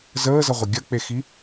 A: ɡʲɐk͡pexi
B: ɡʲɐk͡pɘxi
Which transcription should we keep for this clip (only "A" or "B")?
A